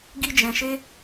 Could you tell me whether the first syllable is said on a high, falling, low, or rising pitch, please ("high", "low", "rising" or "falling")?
high